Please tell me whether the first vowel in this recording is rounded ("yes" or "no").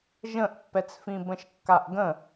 no